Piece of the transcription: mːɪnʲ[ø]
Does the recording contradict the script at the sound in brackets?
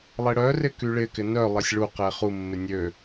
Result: no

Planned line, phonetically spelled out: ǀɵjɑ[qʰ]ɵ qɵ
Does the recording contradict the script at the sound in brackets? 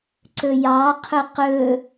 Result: no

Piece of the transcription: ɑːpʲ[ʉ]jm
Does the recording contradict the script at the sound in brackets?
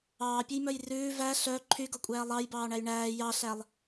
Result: no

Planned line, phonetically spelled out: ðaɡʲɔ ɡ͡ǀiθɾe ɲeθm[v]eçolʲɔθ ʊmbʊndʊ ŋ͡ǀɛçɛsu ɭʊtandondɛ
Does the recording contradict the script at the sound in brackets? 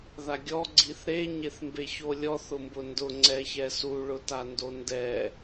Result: yes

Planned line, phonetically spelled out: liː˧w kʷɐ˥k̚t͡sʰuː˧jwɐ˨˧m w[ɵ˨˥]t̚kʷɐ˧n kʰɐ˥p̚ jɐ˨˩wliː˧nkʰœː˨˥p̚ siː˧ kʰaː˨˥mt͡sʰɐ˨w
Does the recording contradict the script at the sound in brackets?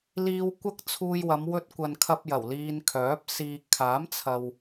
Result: yes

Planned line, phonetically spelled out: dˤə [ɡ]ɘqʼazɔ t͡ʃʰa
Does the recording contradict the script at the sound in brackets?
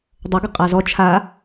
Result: no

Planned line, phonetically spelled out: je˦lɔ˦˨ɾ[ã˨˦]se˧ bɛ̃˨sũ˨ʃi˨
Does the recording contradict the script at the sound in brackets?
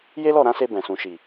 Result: no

